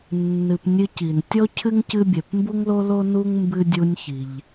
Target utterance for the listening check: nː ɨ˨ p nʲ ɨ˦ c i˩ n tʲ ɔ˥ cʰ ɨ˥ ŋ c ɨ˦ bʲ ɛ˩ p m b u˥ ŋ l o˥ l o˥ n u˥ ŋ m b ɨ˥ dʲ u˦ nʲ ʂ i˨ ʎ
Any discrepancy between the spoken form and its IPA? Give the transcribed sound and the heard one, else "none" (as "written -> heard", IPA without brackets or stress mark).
ʂ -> ç